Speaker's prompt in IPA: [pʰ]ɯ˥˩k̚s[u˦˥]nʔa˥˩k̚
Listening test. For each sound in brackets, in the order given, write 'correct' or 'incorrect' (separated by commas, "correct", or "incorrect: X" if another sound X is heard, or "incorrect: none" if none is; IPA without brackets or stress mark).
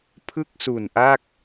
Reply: correct, incorrect: u˨˩